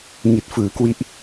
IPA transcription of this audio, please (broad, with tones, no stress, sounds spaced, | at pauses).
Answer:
ŋ i˨˩ t̚ f ɯː˩˦ k w i˦˥ ʔ